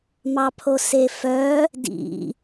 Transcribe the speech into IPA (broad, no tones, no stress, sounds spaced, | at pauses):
m ɑ pʰ o s e f œ | d ḭ